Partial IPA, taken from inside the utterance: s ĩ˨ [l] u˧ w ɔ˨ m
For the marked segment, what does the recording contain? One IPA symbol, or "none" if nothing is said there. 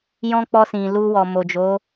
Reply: l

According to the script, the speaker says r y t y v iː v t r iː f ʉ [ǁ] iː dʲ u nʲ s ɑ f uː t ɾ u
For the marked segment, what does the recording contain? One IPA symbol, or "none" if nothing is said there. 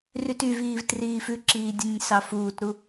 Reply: ǁ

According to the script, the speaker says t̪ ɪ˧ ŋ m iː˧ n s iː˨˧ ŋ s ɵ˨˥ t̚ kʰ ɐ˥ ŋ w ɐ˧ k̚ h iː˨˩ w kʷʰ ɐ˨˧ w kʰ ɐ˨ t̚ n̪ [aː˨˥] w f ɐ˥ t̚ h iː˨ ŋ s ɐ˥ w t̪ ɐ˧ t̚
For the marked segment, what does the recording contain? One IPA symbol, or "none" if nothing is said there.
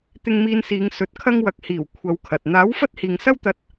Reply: aː˨˥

